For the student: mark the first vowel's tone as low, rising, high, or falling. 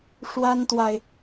high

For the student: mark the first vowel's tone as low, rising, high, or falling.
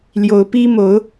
rising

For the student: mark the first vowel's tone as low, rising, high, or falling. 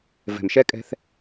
low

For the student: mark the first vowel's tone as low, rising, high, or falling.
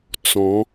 rising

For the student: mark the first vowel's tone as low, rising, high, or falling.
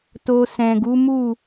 low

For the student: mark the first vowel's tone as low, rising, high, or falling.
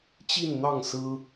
falling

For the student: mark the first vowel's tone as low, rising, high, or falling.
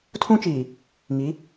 high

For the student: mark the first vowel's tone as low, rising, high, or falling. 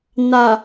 low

